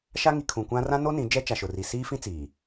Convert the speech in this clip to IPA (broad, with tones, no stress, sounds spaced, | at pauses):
ʃ a˦ ŋ i˨ kʰ ũ˨ kʷ ã˦ r ã˦ n o˦ n ĩ˨˦ d͡ʒ ɛ˦ t͡ʃ a˨ ʃ ʊ˨ r i˨ s iː˦ f ĩ˦ t͡s iː˨